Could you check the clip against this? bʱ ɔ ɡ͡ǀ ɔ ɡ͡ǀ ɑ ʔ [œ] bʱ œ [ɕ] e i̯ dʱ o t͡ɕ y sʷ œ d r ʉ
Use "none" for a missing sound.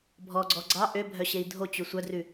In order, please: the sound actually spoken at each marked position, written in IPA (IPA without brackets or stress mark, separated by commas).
ø, ɕ